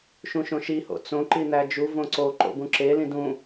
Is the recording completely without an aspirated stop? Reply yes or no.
yes